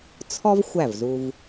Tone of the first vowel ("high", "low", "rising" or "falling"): high